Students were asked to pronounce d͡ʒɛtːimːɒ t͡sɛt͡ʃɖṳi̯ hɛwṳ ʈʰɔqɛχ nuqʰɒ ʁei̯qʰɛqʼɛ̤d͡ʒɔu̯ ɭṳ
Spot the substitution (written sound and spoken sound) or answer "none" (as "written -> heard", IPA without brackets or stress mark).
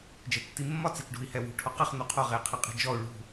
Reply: none